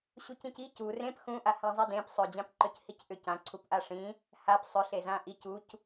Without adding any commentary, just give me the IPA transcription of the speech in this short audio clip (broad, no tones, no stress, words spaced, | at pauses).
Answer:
ɕucĩci cu rẽp xũʔa hãzˤidẽp sˤød͡ʑãp ǃøchicʔʏ cã ǀʰupʔaʂĩ | hap sˤʏ ɬezãʔic uc